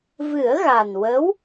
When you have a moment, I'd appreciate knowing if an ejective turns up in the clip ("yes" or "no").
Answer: no